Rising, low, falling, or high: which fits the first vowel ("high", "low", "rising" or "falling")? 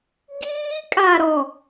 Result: high